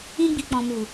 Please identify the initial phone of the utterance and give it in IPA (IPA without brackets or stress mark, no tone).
ĩ